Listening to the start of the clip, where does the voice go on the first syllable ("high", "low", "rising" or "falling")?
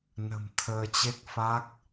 low